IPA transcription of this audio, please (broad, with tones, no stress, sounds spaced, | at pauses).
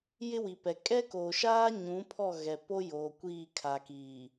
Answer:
j ɪ˦ w i˨ p ɛ˨ kʼ ɛ˦ k oː˨ ʃ aː˦ ɲ ũ˨˦ pʰ ɔ˦˨ ɣ ɛ˨ p o˦ j oː˨ kʷ iː˦˨ kʰ a˨ k iː˨